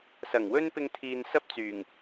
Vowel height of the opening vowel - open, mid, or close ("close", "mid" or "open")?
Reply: open